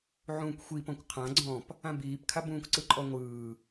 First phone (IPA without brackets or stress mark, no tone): ʕ